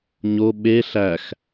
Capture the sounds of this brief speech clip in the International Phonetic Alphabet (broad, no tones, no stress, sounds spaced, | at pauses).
ɲ o ɓ e ɬ æ x